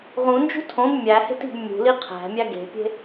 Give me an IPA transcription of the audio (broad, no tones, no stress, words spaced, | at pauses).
ʁũnd͡ʒṳ tʰõb mʲæhe̤t i̤b mʲṳ liqʰæ̤mʲæ ɡe̤pʲe̤